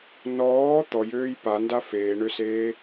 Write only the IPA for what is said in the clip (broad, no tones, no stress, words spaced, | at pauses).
nɔː t̪ɔjøːj panda feːɳøseː